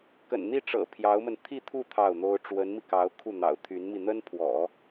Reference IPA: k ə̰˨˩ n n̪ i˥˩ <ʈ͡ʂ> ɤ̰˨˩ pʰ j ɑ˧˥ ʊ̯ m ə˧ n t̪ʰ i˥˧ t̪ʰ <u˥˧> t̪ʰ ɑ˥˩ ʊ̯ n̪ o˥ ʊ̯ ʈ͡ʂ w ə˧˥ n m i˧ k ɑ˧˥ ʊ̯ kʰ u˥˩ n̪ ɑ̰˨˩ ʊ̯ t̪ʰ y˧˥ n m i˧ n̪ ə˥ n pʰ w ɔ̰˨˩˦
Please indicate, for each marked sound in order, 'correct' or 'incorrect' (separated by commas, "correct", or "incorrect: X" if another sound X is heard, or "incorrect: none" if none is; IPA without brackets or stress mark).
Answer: correct, correct